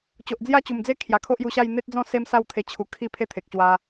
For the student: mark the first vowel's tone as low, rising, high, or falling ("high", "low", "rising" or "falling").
low